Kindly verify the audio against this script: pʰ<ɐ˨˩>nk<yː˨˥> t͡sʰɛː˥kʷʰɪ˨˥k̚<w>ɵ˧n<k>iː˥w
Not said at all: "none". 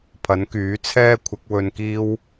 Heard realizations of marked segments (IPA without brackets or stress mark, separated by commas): ɐ˨˥, yː˨˥, w, k